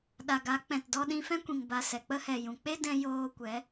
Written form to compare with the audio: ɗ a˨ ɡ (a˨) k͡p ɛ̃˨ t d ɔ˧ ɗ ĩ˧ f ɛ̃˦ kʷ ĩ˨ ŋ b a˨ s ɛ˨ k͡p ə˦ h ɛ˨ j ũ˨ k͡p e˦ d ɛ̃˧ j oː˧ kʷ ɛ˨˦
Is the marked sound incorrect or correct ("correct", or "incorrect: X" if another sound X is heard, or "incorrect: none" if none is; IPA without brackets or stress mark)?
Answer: incorrect: a˨˦